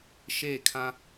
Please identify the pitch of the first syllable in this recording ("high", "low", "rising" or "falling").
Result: falling